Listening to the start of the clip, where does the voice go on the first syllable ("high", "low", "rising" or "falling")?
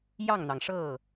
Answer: falling